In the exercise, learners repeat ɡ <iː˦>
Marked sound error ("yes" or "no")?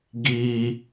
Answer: yes